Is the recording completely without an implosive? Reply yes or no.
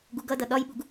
no